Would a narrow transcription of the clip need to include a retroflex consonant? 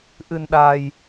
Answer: no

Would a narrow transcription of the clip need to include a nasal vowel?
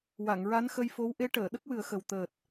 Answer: no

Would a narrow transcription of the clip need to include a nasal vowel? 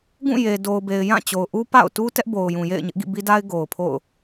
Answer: yes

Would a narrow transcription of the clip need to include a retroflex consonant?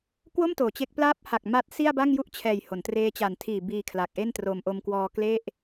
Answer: no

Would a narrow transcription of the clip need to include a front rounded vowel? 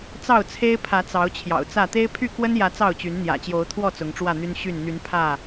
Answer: yes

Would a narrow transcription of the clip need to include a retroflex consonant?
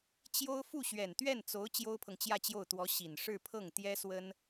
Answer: yes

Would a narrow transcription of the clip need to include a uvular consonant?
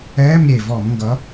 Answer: no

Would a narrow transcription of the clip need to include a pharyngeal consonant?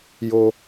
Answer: no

